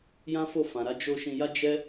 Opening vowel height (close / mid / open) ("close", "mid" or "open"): open